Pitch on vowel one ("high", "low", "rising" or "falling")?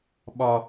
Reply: high